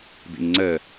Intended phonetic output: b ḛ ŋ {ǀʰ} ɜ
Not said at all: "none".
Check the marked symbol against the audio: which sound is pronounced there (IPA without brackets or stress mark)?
ŋ͡ǀ